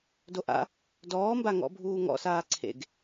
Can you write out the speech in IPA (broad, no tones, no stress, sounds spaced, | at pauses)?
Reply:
d o ʔ a̰ | d ɔː m b a ŋ ɔ̰ bʱ uː ŋ ɔ̰ s aː ǀʰ ḛ ɡ